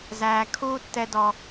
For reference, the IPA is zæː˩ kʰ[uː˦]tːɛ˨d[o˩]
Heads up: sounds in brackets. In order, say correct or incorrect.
correct, incorrect: ɔ˩

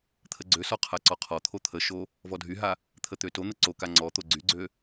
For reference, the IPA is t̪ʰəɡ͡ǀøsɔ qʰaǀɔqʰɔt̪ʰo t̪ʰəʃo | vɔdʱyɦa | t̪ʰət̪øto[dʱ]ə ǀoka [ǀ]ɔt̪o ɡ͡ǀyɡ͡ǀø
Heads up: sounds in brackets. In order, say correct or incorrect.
incorrect: n̪, incorrect: ŋ͡ǀ

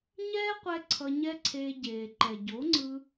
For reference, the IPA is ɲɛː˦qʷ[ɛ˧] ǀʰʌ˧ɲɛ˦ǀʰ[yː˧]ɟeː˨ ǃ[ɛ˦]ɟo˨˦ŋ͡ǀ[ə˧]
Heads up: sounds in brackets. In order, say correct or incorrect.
correct, incorrect: eː˧, incorrect: ɛ˨, incorrect: ɯ˧

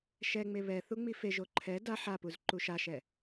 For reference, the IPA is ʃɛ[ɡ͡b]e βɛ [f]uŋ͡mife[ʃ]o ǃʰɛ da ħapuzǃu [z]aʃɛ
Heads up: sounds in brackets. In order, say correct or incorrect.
incorrect: ŋ͡m, incorrect: θ, incorrect: ʒ, incorrect: ʃ

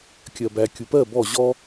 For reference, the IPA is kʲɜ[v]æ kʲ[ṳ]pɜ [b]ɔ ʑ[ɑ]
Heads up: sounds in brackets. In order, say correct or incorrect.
incorrect: b, incorrect: u, correct, incorrect: ɔ

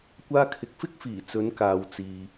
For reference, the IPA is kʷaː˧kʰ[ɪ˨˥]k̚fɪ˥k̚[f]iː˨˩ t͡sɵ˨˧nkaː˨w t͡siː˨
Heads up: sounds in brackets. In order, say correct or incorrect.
incorrect: ɪ˨, correct

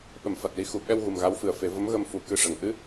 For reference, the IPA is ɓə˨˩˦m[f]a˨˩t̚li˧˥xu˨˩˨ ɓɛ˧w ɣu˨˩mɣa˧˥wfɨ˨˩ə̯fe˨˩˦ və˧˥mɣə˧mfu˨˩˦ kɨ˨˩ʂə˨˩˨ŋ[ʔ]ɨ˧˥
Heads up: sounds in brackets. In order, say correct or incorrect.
correct, correct

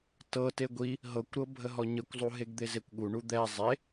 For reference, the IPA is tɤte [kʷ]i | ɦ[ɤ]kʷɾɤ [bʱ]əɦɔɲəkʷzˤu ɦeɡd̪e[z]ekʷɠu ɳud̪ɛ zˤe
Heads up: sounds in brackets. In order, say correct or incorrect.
incorrect: ɡʷ, correct, correct, correct

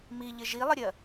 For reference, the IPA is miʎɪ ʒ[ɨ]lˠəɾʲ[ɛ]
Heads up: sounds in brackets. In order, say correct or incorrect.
incorrect: i, incorrect: ɜ

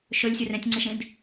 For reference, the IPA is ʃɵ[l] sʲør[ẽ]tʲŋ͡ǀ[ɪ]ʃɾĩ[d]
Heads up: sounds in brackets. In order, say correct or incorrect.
incorrect: lʲ, correct, incorrect: i, correct

